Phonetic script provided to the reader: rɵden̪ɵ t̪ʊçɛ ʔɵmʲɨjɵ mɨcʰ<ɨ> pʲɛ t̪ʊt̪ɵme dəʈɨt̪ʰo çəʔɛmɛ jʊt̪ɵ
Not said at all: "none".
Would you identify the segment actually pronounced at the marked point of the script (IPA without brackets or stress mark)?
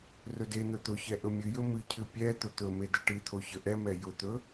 ɨ